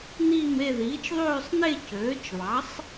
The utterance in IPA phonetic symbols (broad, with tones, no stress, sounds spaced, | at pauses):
n̪ iː˥˧ m e˥˧ ð iː˩˥ t͡ʃ ðˤ øː˥˧ sˤ n e˥˧ c øː˩˥ t͡ʃ β ɑ˩˥ sˤ